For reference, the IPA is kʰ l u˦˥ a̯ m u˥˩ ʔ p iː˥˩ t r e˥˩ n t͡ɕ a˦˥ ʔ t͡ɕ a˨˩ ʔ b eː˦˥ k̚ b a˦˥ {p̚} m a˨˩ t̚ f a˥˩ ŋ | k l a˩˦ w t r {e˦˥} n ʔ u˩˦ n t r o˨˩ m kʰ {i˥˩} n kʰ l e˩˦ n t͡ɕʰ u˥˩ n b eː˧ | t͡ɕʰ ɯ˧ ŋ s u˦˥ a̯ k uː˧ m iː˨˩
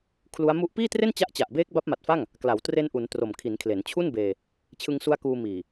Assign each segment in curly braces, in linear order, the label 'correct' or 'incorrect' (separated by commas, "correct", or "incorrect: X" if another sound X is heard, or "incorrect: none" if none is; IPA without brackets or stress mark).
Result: correct, incorrect: e˧, incorrect: i˩˦